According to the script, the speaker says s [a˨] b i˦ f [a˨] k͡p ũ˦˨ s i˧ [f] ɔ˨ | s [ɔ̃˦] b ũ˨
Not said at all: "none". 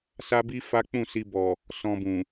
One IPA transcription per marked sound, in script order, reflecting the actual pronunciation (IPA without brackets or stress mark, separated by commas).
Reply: a˦, a˦, b, ɔ̃˧